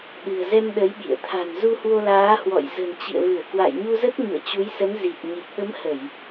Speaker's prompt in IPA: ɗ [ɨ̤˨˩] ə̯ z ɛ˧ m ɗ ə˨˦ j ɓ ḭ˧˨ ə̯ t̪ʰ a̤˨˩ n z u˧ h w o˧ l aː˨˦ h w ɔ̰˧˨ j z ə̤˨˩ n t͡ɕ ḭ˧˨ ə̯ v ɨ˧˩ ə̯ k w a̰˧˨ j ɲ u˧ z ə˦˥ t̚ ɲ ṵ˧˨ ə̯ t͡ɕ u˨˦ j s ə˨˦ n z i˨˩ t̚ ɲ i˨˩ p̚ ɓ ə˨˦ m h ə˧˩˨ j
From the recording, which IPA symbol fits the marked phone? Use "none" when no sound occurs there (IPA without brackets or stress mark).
ɨ̤˨˩